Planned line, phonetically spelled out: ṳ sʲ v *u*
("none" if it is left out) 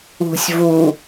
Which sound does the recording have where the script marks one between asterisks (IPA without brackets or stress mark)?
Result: u